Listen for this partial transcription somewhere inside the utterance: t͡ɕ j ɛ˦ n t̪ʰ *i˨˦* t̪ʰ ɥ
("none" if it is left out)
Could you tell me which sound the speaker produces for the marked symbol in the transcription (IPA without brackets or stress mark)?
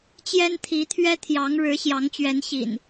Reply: i˨˦